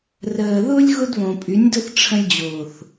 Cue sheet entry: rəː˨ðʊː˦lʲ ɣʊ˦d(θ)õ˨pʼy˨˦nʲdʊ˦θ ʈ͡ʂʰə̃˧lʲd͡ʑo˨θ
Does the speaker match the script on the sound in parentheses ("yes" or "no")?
no